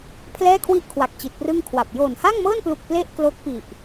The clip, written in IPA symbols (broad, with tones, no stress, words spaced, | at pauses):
pʰlɛː˥˩kʰwi˥˩ʔkʰwa˨˩k̚ t͡ɕi˨˩t̚prɯ˥˩ŋkʰwa˨˩p̚ joː˨˩nha˥˩ŋmɤː˥˩nplu˨˩k̚ ple˥˩ʔklo˦˥k̚pi˨˩ʔ